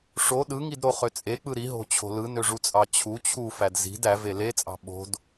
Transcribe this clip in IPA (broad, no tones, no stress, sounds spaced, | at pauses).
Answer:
ʂ o ɗ ɯ ŋ i d ɾ o χ ø t͡sʼ e k͡p ɯ ɾ i ɦ o̤ t͡ɕʰ o̤ l ɯ n ø ʐ u t͡sʼ ɑ t͡ɕʰ u t͡ɕʰ u f æ d z i̤ d æ v e l e t͡sʼ ɑ̤ ɓ o̤ d